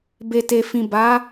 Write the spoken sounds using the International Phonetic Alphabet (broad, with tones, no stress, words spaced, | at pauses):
be˨te˨fĩ˨ba˨˦